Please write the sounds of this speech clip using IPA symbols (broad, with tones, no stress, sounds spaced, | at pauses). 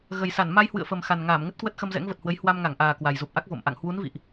ɣ ə˨˩ j s a˧˩ n m a˧ j h w ɨ̰˧˨ ə̯ f ə˨˩ m x a˨˩ n ŋ aː˧˩ m ŋ ə˦˥ t̚ k w ə˦˥ t̚ x ə˧ m z ɛ̰˧˥ ŋ v ə˨˩ t̚ h w ə˨˦ j h w a˧ m ŋ a˧˩ ŋ ʔ aː˨˩ k w a˨˩ j z u˨˩ p̚ ʔ a˦˥ k̚ v o̰˧˨ m ʔ a̰˧˨ ŋ h w u˨˦ n v ḭ˧˨ ʔ